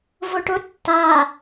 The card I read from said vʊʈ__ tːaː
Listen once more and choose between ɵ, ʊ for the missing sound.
ʊ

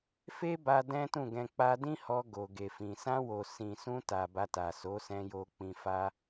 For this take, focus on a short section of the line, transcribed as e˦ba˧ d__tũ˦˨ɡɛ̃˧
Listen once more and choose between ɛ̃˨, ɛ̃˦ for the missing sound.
ɛ̃˦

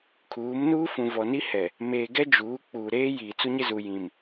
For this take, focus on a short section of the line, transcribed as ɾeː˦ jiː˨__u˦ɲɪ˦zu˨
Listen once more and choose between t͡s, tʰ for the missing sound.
t͡s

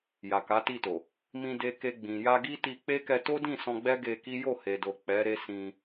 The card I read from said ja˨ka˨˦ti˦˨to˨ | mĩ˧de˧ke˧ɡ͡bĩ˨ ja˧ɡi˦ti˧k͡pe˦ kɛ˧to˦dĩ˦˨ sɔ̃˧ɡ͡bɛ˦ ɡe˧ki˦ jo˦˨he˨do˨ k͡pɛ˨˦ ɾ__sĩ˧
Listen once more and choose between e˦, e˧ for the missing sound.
e˦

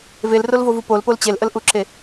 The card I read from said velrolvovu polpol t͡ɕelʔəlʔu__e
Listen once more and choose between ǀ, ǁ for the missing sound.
ǁ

